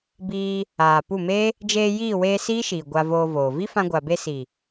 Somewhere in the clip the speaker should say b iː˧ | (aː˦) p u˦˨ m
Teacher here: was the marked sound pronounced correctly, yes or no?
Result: no